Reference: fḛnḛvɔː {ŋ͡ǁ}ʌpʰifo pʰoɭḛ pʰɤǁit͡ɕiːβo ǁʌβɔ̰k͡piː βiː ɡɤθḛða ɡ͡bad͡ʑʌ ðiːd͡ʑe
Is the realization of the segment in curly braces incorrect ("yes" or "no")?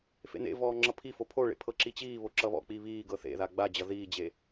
no